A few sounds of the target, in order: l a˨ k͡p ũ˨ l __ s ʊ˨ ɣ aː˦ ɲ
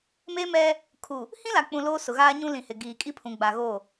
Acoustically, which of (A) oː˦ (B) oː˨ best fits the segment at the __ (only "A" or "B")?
A